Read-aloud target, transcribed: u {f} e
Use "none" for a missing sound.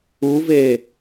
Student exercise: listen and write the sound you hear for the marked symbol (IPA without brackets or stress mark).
v